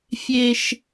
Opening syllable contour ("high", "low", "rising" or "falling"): high